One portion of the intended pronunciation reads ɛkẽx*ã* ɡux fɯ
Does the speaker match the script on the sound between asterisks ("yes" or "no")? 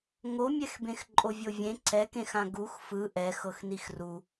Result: yes